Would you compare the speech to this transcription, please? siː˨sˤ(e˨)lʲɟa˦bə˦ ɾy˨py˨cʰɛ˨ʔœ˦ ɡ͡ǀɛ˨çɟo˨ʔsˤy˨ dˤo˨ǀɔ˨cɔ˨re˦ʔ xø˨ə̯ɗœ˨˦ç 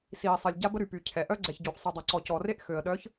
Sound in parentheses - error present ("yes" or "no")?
yes